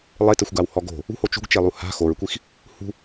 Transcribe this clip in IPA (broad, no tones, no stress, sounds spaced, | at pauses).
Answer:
lˠ e t ɘ xʷ ɡ a w h ɔ ɡ o̤ | ṳ h o t͡ʃ ṳ ɡ t͡ʃ e lˠ u h a̤ x o ɹ kʷ i x | h ṳ